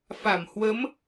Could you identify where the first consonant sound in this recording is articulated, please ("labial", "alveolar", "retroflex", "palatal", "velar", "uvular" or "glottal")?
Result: labial